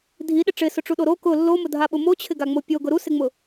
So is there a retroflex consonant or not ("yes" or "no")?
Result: yes